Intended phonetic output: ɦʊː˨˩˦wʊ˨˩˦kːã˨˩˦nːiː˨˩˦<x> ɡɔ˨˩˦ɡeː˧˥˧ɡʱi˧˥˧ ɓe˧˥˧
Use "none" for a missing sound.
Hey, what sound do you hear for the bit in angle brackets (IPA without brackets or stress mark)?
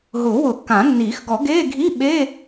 x